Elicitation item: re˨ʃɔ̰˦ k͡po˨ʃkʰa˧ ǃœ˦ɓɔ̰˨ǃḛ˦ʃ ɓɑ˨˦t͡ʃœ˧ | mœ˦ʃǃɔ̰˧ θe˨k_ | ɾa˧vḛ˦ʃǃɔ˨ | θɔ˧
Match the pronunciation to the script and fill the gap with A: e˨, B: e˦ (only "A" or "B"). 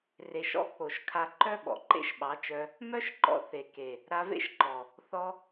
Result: A